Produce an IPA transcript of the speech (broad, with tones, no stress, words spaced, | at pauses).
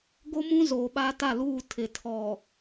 ɡo˦mũ˦ zoː˨ɓaː˦ta˦˨luː˦˨ tʰɪ˨ tʰɔ˨